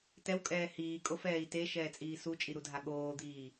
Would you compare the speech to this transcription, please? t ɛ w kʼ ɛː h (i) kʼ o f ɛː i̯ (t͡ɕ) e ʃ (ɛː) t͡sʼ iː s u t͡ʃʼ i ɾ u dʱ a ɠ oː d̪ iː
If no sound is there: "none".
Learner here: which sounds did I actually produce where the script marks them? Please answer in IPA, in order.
iː, t, ɛː

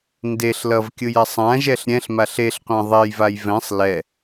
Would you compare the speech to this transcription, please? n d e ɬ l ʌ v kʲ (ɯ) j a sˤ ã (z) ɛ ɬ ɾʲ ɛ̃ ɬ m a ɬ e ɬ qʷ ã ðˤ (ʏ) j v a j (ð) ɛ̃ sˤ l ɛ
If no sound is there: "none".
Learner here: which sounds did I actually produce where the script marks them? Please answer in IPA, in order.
ɯ, ʒ, ɛ, v

